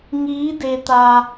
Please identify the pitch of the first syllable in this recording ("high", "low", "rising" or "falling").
rising